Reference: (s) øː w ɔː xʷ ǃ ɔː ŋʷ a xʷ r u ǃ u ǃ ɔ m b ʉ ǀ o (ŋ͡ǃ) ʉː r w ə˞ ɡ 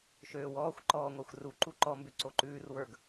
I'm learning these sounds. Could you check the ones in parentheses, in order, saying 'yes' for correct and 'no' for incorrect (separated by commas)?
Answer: no, no